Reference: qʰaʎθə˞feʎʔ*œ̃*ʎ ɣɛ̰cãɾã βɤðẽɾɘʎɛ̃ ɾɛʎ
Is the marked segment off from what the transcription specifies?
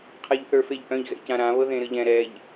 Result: no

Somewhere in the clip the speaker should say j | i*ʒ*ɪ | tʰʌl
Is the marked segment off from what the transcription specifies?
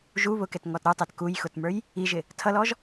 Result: no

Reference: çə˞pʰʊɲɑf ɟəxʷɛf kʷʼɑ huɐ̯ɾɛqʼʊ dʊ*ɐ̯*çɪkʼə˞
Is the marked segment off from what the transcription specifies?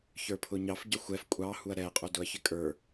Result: no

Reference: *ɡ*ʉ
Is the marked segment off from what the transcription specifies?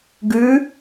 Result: no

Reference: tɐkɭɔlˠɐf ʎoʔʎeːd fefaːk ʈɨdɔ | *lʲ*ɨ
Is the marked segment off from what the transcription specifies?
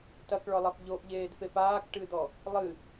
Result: yes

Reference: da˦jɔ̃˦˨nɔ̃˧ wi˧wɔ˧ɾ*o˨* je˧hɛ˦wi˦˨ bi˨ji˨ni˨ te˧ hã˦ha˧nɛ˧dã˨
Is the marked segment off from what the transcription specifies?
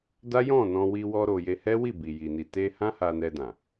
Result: no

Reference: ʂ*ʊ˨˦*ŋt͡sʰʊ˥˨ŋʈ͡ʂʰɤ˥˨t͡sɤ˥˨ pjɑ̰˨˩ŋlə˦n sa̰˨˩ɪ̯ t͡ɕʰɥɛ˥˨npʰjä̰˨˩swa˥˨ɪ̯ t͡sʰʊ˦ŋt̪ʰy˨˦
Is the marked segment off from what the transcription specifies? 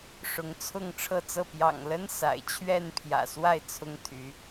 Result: no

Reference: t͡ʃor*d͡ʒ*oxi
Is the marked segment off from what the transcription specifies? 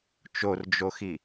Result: no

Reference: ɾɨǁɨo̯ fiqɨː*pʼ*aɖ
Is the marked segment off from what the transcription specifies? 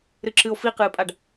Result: no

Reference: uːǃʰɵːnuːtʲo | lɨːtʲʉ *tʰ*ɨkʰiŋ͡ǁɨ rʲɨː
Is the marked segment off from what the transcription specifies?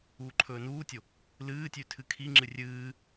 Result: no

